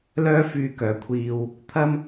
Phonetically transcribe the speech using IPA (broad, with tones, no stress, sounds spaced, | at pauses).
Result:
l œː˥ f yː˧ k œː˨ kʷʰ iː˧ w | t̪ʰ ɐ˥ m